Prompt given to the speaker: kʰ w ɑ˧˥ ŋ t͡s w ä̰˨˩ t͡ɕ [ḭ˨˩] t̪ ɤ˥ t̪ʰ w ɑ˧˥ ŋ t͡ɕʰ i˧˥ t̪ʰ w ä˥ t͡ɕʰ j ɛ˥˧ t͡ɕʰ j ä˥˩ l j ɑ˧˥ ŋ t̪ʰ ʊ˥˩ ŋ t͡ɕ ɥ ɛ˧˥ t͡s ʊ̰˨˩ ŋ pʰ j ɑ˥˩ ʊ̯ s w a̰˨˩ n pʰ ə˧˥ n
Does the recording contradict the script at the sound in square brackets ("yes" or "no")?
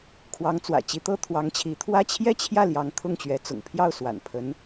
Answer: yes